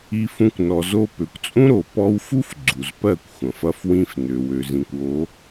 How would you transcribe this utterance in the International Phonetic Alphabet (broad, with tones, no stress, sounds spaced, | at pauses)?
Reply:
i˧ f ũ˧ kʷ n ɔ˨ z o˧ p ø˨ kʷ t͡sʼ ũ˦ ɾ o˨ p ɔ˧ w f u˦ f ɡ͡ǀ u˨ z p ɜ˦˨ kʷ xʷ ɐ̃˨ f ɐ˧ f w ĩ˧ f n ø˨ w ø˨ z ĩ˨ kʷ o˨˦